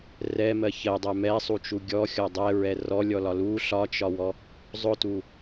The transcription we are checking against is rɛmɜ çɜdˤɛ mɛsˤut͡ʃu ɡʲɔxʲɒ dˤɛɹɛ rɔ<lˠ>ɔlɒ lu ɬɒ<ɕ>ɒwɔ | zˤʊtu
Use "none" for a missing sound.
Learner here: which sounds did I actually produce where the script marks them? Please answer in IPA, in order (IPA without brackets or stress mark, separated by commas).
lʲ, t͡ʃ